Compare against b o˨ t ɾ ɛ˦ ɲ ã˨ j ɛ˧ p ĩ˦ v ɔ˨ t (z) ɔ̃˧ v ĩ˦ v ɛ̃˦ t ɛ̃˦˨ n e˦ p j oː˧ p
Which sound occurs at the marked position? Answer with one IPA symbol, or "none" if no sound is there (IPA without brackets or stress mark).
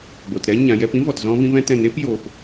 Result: z